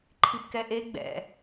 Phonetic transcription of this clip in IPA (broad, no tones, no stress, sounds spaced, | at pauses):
ǃʰ i p k ɛ ʔ e ɡ͡b ɛ̰